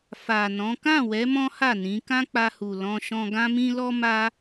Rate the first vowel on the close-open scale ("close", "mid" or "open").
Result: open